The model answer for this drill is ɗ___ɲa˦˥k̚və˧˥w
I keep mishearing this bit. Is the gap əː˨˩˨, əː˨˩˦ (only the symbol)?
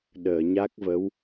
əː˨˩˨